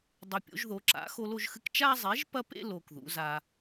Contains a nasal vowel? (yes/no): no